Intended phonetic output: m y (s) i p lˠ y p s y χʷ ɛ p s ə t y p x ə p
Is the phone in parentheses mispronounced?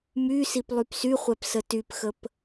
no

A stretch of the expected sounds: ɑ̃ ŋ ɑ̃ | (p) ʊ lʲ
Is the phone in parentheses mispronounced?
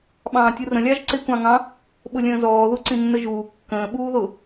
yes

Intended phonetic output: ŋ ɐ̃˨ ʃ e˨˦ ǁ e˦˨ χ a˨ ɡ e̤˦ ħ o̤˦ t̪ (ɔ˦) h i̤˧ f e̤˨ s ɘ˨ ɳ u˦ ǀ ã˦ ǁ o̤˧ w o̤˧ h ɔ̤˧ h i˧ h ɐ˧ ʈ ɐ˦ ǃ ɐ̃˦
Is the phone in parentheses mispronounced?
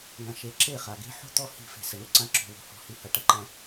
no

